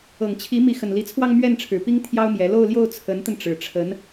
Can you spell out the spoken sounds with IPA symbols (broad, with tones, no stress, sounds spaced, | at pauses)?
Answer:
ɤ˨˩ ŋ t͡ɕʰ i˧˥ m i˧˥ x ə˨˩ n l i˧˥ t͡sʰ w ɑ˥˧ ŋ m ɥ ɛ˥˩ n ʈ͡ʂʰ ɻ̩˨˩ p i˥ ŋ t̪ʰ j ɑ˥ ʊ̯ m j ɛ˧˥ l o˥˧ ʊ̯ l j o˥˩ ʊ̯ t͡sʰ ə˧˥ n t̪ ə˧ n ʈ͡ʂ ɻ̩˨˩ ʈ͡ʂʰ ə˧˥ n